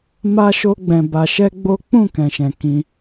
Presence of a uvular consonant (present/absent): absent